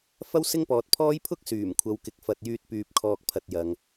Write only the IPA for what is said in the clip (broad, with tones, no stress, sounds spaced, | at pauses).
f ɐ˥ w s ɪ˥ ŋ p ɔː˨˥ t̚ pʰ ɔː˥ j pʰ ʊ˥ k̚ s yː˨˩ m kʷʰ ɐ˨˧ w k ɪ˨ k̚ f ɐ˧ t̚ j yː˥ t̚ p yː˧ p̚ kʰ ɔː˧ k̚ pʰ ɐ˧ t̚ j ɐ˨ ŋ